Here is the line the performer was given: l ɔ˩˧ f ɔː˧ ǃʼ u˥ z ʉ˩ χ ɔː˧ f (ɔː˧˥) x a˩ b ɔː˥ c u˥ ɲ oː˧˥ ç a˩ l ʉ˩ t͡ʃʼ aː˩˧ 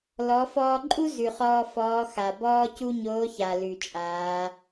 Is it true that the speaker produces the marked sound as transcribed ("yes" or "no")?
yes